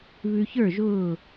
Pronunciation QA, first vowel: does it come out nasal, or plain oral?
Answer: oral